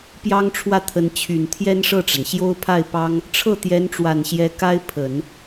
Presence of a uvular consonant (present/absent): absent